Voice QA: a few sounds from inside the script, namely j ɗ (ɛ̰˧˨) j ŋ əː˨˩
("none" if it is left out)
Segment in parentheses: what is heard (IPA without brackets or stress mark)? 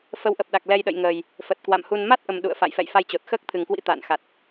ə̰˧˨